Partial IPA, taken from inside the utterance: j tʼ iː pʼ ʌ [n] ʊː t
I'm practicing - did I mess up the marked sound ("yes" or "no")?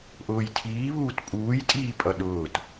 yes